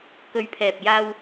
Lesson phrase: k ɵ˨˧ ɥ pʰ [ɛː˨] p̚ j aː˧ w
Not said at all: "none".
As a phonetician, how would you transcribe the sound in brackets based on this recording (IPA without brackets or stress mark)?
ɛː˨